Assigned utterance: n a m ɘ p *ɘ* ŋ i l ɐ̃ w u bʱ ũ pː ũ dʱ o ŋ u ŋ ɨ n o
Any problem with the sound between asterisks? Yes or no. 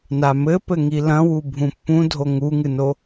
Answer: no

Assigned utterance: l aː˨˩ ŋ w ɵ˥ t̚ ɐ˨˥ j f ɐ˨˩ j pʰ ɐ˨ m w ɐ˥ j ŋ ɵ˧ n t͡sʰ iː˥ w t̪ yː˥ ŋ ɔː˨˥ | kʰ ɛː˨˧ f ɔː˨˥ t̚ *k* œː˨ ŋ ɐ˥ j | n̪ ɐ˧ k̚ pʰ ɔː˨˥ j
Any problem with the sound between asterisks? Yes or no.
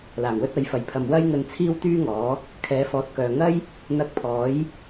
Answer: no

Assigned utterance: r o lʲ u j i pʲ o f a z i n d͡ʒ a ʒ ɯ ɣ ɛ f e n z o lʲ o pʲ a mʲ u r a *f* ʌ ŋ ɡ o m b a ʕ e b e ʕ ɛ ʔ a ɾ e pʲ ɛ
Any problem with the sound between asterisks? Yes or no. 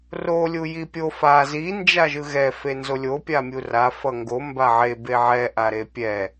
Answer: no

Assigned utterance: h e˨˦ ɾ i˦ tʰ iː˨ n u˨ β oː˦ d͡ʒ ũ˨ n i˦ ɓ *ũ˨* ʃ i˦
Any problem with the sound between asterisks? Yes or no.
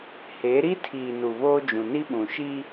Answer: no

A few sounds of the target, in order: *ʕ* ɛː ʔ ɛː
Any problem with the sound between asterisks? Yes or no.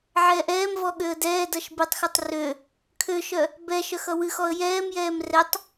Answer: no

